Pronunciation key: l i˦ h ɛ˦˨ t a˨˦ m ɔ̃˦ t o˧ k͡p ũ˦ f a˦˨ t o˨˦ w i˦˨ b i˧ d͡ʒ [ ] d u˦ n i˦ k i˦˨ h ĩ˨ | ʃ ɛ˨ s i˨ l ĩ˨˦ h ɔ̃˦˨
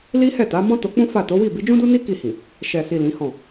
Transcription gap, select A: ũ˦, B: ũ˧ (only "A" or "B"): A